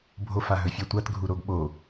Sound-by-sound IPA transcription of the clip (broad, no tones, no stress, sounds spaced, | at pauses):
bʱ o f a ɦ ɵ fʲ a tʷ a t ɡʱ u ɾ o ɡ ɓ o